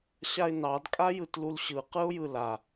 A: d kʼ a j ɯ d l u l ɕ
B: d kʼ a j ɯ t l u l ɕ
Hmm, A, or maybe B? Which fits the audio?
B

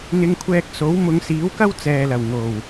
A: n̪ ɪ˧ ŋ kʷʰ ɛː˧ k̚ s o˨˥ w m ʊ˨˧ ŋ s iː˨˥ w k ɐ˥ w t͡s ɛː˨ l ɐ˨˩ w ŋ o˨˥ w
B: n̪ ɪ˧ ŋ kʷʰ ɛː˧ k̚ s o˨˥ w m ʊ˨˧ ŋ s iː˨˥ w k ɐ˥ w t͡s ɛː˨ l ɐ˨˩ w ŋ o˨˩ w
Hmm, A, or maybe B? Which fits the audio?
B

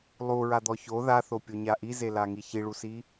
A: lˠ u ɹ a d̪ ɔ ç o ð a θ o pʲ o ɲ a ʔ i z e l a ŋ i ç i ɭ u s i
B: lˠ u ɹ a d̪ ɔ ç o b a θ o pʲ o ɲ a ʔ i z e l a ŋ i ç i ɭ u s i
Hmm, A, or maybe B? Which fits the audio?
A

